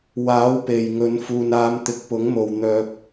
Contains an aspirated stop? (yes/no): no